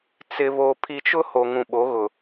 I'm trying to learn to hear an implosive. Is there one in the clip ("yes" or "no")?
yes